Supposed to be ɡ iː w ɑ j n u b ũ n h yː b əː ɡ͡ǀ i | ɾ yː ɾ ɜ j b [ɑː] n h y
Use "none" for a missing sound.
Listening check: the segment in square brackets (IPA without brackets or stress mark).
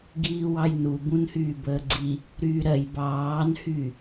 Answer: ɑː